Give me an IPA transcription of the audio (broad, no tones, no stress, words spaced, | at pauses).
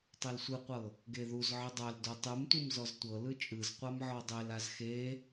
tˤɛlsʷɯqʷɤ | ɡeðuzʕɯ dˤal dotˤɯmtʷɯm zɔztʷɤlɯ t͡ʃʼɯzqʷam ʕɔdˤelaz xe